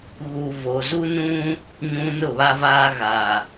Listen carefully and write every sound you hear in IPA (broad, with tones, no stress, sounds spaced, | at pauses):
ɣ u˨ v o˨ z u˦ n ũ˦ | ɲ ũ˨ n ʊ˦˨ β a˦ v aː˦ ɣ a˨